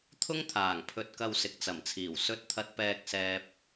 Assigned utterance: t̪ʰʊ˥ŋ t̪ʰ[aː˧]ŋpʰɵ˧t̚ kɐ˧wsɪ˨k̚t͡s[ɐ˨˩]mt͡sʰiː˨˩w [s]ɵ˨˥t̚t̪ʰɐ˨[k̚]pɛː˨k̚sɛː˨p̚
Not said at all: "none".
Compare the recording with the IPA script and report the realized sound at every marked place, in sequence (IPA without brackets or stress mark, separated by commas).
aː˨˩, ɐ˨˩, s, t̚